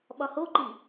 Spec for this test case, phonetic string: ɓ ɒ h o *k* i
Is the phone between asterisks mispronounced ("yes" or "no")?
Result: yes